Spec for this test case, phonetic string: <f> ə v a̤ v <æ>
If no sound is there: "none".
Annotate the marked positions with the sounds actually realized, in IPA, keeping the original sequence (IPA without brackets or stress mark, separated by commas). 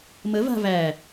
m, æ